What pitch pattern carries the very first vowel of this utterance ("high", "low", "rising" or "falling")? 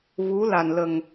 rising